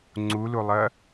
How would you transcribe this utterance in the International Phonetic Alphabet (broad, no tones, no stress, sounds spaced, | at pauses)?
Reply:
ŋ͡ǀ u l u lˠ ɐ